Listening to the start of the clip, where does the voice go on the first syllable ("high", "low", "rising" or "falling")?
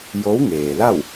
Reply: rising